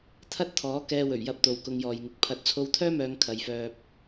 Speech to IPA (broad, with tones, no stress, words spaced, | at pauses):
t̪ʰɐ˥t̚t̪ʰɔː˨˥ kɛː˧wɵ˨˩ɥjɐ˧p̚ t̪o˨wkʊ˧ŋjɔː˨jŋɪ˨˥k̚ pʰɐ˨t̚t͡sʰo˧wt̪ʰœː˥mœː˨˧ŋ kʰɐ˨˧jfœː˧p̚